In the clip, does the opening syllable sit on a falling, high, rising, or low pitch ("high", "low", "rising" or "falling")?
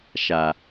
low